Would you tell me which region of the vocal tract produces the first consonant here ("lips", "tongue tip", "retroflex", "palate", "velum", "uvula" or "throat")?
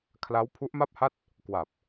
velum